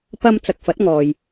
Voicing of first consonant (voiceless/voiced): voiceless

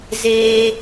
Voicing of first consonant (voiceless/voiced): voiced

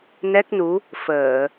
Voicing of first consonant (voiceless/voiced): voiced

